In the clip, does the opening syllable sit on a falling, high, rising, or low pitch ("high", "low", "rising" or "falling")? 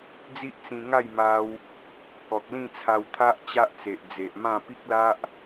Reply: high